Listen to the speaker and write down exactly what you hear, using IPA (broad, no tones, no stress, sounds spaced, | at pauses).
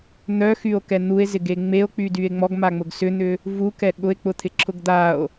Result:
n̪ œ x y o̯ k ɛ n̪ u e̯ z ɪ ɡ e ŋ͡m e o̯ k͡p y d y e̯ ŋ͡m ɔ ɡ m a ŋ͡m ʊ ɡ s ʏ n̪ ʏ | v u k ɛ ɠ ʊ e̯ k͡p ʊ t̪ʰ ɪ ǁʰ ʊ ɡ d̪ a o̯